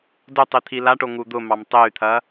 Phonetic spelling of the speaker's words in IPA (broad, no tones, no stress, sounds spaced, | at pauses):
d ʊ tˤ i t̪ʰ i l a ʈ o ŋ u d̪ ʊ m ɑ m tˤ e y̯ t̪ʰ ɐ